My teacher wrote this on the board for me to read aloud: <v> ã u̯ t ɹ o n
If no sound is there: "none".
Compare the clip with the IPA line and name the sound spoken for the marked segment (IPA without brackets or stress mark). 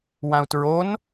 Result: w